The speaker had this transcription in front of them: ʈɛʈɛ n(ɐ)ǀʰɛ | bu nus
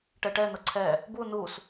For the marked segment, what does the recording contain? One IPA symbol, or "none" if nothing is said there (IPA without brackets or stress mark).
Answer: ɐ